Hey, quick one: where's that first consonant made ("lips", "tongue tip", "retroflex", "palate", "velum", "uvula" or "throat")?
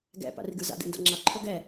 velum